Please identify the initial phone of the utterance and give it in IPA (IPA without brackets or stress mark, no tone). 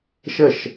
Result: ʃ